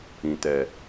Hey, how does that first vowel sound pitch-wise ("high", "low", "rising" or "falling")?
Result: low